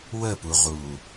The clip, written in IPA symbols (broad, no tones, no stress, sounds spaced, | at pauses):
w ə p u ʁ uː